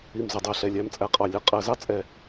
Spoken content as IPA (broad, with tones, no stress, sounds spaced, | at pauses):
i˧˩ m z ə˩˧ dˤ ɛ˩˧ ɬ ɛ˧˩ lʲ æ˥ m t͡sʼ æ˧ qʼ ɑ˧˩ lʲ ə˥˧ qʼ ɜ˩˧ z ɑ˥ t͡sʼ ɛ˧˩